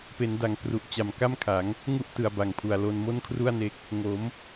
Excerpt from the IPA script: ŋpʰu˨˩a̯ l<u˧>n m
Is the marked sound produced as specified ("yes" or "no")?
no